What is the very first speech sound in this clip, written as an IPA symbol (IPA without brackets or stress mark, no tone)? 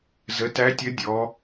z